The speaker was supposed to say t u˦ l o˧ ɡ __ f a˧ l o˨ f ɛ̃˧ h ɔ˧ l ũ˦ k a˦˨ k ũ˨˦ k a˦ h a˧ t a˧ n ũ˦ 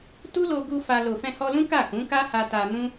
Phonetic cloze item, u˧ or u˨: u˧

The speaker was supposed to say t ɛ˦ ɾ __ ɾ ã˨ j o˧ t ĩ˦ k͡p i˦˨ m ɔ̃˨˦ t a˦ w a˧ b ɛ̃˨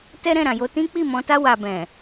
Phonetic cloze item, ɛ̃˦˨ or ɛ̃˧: ɛ̃˦˨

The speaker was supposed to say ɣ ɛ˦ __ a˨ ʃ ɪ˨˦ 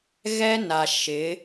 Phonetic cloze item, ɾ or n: n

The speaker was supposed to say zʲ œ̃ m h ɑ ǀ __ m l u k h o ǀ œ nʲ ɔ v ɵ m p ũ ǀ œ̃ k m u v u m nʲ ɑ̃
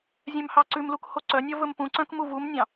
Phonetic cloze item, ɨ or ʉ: ʉ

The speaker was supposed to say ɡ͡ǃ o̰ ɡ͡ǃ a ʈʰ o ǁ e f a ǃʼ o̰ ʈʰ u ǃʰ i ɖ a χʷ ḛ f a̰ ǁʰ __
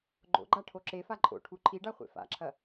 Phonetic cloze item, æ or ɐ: ɐ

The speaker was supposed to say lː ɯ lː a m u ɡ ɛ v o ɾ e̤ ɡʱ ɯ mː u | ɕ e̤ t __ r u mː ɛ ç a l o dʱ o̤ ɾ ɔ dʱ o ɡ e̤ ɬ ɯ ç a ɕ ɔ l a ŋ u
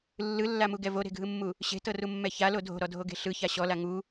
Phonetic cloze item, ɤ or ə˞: ɤ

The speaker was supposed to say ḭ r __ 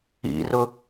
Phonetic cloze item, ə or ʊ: ʊ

